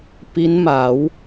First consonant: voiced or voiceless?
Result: voiceless